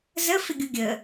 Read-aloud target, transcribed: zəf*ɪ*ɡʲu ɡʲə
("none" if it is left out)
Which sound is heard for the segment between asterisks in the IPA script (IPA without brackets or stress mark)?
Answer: ɪ